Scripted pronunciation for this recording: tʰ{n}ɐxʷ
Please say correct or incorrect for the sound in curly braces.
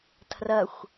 incorrect